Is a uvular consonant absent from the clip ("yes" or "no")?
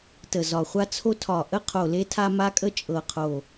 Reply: no